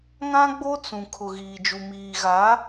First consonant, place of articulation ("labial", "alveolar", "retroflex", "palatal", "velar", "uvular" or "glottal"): velar